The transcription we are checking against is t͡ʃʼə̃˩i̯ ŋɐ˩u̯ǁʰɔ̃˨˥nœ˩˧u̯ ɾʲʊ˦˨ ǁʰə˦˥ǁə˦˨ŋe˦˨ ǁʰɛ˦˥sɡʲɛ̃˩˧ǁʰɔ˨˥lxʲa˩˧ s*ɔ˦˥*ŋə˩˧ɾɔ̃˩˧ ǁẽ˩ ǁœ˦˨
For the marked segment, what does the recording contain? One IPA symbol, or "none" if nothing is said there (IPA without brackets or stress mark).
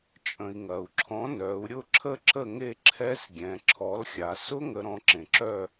ʊ˦˥